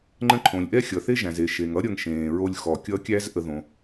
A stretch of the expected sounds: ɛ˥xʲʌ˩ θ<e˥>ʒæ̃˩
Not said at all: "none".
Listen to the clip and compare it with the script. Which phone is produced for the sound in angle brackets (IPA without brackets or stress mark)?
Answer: e˥